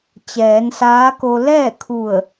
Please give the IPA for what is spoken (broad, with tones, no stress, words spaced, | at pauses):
t͡ɕɛː˩˧nsaː˧˥ko˧ lɛː˥˨kʰu˧˩ə̯